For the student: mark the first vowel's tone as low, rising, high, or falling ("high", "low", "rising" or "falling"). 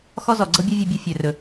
high